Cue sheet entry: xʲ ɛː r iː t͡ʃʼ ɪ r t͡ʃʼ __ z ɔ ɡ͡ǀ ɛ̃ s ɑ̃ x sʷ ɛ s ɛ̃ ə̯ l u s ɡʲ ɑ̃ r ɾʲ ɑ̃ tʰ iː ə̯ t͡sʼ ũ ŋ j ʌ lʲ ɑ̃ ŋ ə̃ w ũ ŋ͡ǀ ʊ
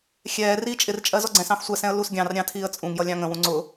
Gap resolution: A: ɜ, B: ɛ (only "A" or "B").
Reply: A